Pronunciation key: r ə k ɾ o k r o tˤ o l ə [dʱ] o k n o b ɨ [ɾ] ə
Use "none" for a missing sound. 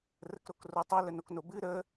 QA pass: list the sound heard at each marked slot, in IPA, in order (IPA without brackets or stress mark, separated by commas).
n, ɾ